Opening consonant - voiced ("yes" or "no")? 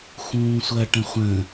no